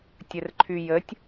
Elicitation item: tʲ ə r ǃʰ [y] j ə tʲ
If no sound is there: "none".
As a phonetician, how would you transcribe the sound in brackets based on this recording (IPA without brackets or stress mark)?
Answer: y